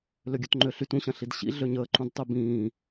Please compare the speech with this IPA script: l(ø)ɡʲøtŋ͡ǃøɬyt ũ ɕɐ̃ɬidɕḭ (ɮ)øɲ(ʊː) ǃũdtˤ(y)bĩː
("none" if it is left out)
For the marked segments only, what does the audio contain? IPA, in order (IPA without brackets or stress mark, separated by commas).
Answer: ø, ɮ, əː, y